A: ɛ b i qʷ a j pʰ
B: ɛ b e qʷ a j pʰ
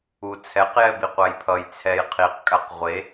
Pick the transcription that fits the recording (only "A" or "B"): A